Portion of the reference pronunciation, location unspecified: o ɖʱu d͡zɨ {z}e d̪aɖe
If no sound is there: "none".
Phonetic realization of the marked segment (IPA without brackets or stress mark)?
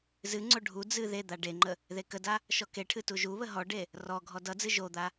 ð